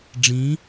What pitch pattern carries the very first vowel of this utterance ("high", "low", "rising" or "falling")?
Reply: rising